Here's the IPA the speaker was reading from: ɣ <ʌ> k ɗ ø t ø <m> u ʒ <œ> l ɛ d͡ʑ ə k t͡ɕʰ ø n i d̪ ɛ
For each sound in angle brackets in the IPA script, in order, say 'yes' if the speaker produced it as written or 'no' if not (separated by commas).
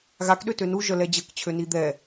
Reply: no, no, yes